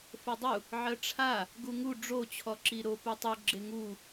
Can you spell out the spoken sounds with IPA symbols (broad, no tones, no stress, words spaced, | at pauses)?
fodˤu | ʕɜʈ͡ʂʰa | ɡuŋu ɖ͡ʐo t͡ɕʰɔǁiɾo putˤu ɡ͡ǁeŋu